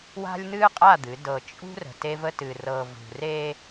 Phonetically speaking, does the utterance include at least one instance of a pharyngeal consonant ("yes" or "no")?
no